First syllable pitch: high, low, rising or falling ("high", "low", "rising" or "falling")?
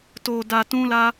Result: low